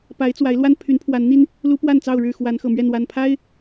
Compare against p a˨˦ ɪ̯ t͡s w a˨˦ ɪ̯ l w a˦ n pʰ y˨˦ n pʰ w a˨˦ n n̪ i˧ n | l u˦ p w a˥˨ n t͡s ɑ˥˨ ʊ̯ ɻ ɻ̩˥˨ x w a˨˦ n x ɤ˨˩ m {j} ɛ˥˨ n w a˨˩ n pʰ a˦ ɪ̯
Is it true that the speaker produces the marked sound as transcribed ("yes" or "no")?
no